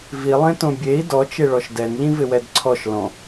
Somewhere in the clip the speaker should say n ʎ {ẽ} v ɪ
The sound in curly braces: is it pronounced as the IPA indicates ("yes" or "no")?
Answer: no